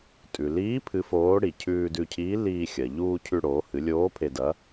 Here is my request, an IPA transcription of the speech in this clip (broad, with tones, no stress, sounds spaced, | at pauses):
tʼ ʉ˩ l iː˧˥ pʰ ɨ˧˥ f oː˧˥ ɽ i˩ cʰ ʉː˧ d ʉ˧ cʰ iː˧˥ l iː˧ xʲ ɐ˩ ʎ uː˧ cʰ ʉ˧ ɽ oː˩˧ h ɨ˩˧ lʲ oː˧˥ pʰ e˧ d ɐ˧˥